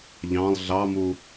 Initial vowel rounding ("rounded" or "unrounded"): unrounded